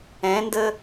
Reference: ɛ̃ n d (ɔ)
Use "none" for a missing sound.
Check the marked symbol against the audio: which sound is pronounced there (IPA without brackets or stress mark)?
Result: ə